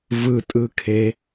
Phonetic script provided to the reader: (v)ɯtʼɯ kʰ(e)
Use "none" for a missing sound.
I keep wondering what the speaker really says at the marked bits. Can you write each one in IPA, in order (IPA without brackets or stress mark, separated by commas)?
v, e